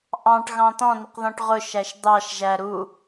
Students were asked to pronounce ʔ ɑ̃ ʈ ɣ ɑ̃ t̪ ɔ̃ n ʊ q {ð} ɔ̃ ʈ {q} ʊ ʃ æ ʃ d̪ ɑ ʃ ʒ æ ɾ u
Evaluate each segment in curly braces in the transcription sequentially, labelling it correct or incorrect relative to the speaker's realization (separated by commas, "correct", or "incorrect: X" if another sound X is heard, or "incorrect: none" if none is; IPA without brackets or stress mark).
correct, incorrect: ʁ